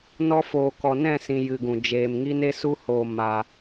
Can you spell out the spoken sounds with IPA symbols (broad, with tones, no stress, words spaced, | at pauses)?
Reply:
nɔ˧foː˨ kɔ˨nɛ̃˦˨sĩ˨ jɨ˨ɡũ˨ d͡ʒeː˨mŋi˦ne˦ su˧hoː˨ ma˧